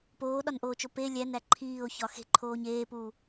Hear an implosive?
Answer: yes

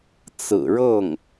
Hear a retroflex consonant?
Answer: yes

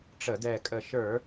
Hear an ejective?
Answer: yes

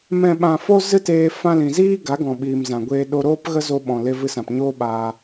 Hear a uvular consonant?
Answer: no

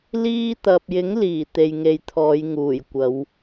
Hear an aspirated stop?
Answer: yes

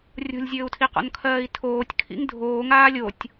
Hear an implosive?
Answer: no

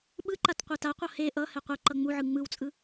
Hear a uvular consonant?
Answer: yes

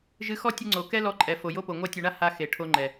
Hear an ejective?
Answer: yes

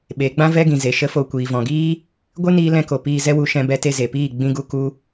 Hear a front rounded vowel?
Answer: no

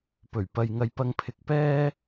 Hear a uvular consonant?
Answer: no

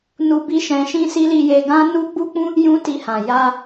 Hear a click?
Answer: no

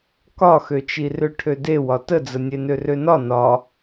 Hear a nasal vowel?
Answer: no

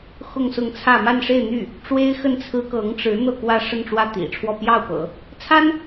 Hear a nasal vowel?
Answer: no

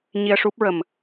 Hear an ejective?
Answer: no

